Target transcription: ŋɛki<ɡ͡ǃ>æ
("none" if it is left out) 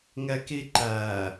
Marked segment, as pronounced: ǃ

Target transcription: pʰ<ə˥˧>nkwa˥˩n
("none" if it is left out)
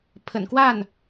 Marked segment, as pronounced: ə̰˨˩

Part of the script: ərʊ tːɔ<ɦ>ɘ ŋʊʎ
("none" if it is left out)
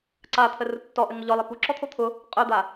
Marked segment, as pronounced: ʔ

